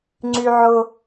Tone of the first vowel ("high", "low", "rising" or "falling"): low